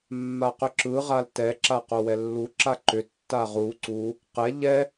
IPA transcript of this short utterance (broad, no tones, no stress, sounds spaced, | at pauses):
mː a q ʏ ǁ ɯ ʁ a l t ɛ ǁ a q o w ɛ lː u ǁ a ǃ ʏ tː a ʁ u ǀ u | q ɛ ʎ ɛ